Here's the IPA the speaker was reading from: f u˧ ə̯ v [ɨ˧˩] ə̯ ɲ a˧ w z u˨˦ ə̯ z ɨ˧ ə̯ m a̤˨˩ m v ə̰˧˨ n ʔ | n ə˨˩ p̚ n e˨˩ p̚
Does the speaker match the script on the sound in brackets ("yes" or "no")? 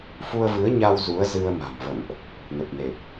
no